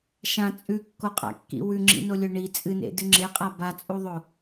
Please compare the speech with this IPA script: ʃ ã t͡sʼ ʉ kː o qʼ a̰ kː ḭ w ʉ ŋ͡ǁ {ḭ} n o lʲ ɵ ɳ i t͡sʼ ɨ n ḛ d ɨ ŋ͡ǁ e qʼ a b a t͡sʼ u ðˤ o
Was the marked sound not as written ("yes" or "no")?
no